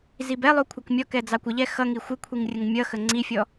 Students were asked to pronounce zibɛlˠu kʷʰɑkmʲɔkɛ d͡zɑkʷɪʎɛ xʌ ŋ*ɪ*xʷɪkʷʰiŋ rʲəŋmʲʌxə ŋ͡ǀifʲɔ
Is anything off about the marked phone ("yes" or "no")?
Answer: yes